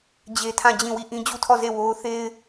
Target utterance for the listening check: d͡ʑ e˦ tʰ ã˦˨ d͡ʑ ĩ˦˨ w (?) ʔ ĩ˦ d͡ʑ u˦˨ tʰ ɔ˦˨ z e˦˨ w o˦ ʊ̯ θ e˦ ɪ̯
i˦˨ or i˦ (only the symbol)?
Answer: i˦˨